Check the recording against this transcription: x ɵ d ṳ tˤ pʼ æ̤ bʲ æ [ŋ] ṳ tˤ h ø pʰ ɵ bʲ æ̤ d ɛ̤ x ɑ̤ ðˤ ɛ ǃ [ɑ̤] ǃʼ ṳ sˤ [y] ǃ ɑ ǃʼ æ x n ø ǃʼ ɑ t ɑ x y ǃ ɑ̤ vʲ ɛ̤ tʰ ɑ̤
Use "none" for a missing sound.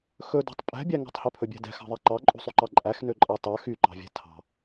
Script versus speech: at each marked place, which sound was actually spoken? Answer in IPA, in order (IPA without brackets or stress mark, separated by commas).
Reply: ŋ, ɑ, y